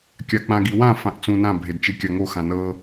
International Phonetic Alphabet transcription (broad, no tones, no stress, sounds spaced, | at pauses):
kʲ a k͡p ã ɡ i w ã f ã ʔ t͡s ũ n ã bʱ e d t͡ʃ e kʲ a ŋ o x ã n ɤ